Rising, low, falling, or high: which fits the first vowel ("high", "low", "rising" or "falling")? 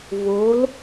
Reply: rising